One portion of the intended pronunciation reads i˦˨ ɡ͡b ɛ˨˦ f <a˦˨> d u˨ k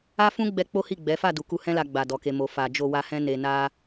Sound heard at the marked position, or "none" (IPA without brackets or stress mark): a˦˨